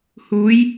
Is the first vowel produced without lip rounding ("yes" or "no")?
no